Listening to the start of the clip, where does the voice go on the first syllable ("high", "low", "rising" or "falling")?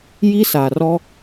high